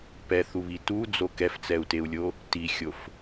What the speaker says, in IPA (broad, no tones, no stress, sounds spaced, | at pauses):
p ɛ θ u β i t u d͡z o k ɛ f t͡s ɛ u̯ t e u̯ lʲ o | t i xʲ o f